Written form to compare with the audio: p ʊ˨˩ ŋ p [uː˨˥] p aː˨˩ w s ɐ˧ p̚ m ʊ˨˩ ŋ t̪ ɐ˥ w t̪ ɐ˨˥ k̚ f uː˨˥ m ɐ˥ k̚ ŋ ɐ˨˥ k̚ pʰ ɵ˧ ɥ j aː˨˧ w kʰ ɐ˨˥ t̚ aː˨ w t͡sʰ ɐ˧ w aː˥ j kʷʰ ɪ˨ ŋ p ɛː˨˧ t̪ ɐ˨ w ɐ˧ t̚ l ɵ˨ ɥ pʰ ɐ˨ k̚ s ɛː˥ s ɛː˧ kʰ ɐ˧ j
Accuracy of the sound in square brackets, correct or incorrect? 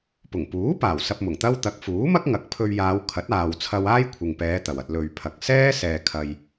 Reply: correct